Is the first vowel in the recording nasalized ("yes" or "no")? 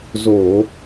no